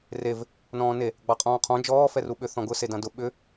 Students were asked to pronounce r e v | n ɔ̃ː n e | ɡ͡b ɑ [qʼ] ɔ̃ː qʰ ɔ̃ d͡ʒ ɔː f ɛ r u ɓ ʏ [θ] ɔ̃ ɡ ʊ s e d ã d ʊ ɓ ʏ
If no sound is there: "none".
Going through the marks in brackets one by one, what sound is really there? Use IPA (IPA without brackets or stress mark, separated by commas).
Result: qʼ, θ